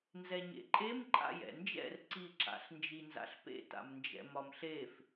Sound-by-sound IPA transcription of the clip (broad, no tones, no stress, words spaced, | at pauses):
nzɛɲḛǃʼem ǃʼa̰jɛ̰nd͡ʒɛ̰r ǀiǁa̰ɬnd͡ʒi nza̰ɬpḛta̰mnd͡ʒɛ̰ mɒmɬef